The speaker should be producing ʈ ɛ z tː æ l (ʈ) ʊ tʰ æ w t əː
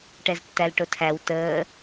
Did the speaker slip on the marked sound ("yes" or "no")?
no